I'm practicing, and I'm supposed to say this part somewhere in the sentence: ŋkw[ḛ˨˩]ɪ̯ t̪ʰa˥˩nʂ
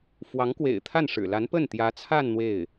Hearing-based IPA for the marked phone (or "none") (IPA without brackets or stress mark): ḛ˨˩